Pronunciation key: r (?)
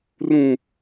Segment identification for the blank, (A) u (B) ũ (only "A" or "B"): B